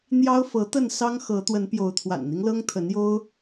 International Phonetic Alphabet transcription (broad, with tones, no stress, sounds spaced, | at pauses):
n̪ j ɑ˦ ʊ̯ f ɤ˨˦ t̪ ə˥˨ n s ɑ˦ ŋ x ɤ˨˦ t̪ w ə˨˦ n p j o˨˦ ʊ̯ t̪ʰ w a̰˨˩ n n̪ i˦ ŋ l ɤ˦ ŋ t̪ʰ ə˨˦ n j o˦ ʊ̯